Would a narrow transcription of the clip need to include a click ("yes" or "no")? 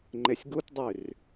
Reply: yes